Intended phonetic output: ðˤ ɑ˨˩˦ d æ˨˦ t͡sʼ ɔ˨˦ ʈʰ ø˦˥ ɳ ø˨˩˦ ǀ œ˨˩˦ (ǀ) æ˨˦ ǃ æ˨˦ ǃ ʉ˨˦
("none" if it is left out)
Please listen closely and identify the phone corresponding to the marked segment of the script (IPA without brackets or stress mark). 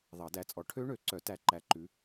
t